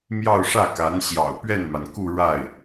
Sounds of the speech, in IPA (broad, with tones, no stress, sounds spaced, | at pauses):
m j ɑ˥˧ ʊ̯ ʂ ä˥˩ k a˧˥ n ɕ j ɑ̰˨˩ ʊ̯ p ɥ ɛ˥˩ n m a˩ n k u˥˧ ɻ a˥˩ ɪ̯